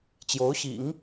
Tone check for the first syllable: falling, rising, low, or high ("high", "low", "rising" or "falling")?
rising